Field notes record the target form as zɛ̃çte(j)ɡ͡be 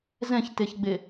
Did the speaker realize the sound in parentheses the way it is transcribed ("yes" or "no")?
no